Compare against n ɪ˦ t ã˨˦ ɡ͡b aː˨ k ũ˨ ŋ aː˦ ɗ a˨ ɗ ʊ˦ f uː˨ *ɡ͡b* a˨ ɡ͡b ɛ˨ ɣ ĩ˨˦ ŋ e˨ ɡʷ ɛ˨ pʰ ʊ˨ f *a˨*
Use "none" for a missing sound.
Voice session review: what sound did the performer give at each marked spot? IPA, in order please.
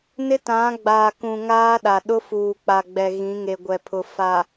k͡p, a˨

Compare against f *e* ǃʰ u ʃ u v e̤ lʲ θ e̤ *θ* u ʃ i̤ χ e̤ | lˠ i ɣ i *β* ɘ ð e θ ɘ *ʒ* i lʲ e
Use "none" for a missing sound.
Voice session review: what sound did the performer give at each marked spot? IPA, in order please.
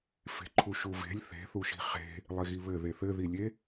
e̤, θ, β, ð

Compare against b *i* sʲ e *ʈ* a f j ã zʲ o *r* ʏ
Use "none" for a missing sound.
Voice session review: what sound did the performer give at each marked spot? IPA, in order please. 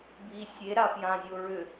i, ɾ, ɹ

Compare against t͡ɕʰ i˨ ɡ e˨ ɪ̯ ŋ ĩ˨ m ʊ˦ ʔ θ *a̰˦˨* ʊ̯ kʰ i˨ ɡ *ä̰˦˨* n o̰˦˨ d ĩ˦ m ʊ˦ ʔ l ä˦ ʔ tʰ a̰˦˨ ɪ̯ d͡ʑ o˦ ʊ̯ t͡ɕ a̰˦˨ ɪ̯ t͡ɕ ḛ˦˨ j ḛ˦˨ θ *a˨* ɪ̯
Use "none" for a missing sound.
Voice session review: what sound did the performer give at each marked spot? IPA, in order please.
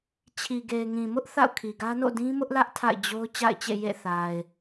a̰˦˨, ä˦, a˨

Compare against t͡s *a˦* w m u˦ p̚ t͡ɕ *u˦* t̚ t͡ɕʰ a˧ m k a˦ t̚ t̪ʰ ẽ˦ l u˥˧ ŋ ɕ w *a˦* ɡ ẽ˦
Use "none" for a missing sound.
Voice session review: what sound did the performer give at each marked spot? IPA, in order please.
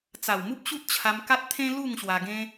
a˨˩, u˦, a˧

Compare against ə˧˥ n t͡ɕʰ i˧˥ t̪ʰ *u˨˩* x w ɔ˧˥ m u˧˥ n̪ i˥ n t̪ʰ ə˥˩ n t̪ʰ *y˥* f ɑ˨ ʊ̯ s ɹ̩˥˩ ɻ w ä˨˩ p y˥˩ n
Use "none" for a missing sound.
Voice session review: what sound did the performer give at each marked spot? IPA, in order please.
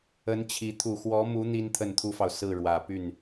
u˨˩, u˥

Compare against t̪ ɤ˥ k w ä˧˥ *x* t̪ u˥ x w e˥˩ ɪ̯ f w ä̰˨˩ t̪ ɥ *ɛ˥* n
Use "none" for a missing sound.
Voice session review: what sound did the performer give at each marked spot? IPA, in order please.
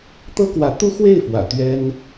none, ɛ˥

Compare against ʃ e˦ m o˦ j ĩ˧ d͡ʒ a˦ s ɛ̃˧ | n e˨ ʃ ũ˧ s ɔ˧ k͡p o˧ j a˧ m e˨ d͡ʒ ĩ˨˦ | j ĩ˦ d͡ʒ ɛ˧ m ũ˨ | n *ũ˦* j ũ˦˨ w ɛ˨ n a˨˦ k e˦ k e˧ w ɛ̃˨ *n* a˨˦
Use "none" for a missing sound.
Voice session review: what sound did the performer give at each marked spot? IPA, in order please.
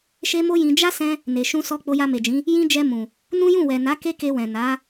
ũ˦, n

